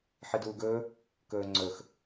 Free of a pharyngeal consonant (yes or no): no